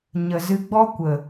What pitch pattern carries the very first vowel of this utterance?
low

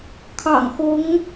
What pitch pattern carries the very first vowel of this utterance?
low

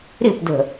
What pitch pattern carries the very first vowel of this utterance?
falling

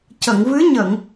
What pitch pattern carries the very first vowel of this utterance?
low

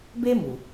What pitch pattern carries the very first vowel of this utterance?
high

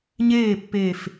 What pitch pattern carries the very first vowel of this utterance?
falling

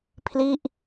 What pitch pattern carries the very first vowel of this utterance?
falling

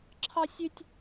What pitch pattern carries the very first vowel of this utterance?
high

